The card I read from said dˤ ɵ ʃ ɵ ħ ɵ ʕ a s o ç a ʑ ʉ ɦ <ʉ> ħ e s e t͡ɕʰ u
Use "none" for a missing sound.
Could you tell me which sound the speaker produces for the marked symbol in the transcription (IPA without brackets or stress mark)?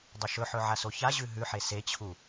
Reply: ʉ